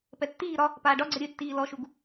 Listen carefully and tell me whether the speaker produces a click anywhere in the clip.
yes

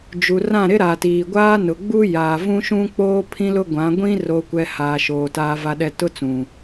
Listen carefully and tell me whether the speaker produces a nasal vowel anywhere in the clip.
yes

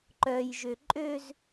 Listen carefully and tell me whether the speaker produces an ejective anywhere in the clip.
yes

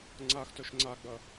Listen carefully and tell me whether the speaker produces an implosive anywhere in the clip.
no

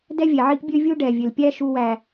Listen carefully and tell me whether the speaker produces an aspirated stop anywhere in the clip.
no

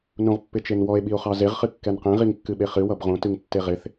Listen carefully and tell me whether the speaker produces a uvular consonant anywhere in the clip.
yes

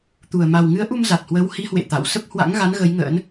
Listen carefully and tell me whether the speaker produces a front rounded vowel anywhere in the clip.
no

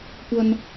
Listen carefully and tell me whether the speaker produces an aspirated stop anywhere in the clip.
no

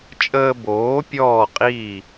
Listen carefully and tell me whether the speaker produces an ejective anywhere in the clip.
yes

